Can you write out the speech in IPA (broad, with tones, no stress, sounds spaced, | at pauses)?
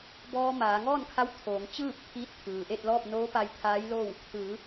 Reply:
b ɔː˧ m aː˩˧ ŋ ɔː˥˨ n kʰ a˧˥ w t̪ʰ oː˩˧ ŋ t͡ɕ ɯː˥˨ p̚ t̪ʰ iː˧˥ t̚ t̪ʰ ɯː˩ ʔ e˥˨ t̚ l ɔː˥˨ p̚ n oː˧˥ p a˧ j t̪ʰ aː˧˥ j l oː˥˨ w | t̪ ɯː˩˧